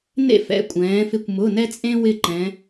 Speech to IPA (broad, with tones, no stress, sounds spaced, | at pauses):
n ḛ˥˩ f ɛ̰˩˧˩ kʷʼ ɛ̃ː˩˧ f ɪ˧˩ kʷ m ʊ˩˧˩ n ɛ˦ t͡sʼ ẽ˦ w ɪ˧˩ ǃ ɛ̃˩˧